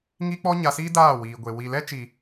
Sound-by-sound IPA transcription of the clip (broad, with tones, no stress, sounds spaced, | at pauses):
ŋ i˦ k͡p ɔ˦ ɲ a˧ s iː˦ d aː˦˨ w iː˨ ɡʷ e˨ w i˨ l ɛ˦ t͡ʃ i˨